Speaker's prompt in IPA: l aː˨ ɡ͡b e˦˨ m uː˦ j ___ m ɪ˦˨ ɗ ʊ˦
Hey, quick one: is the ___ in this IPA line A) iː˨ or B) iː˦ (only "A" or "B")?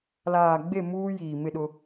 A